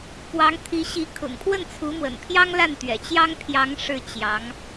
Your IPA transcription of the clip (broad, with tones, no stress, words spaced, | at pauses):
pwɑ˧˥ŋt̪ʰi˧˥ɕi˧˥ kʰʊ̰˨˩ŋpʰwə˥˩nt͡sʰu˧˥mwə̰˨˩n pʰjɑ˥ŋla˥˩nt̪ɥɛ̰˨˩ t͡ɕjɑ˥ŋpʰjɑ˧˥ŋ ʂɻ̩˥˩ t͡ɕjɑ˧˥ŋ